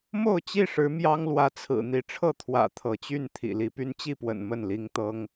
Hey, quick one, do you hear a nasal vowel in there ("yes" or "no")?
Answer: no